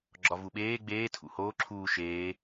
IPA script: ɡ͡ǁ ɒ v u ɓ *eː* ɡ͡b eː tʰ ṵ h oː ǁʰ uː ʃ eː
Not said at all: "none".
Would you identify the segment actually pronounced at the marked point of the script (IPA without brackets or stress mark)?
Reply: eː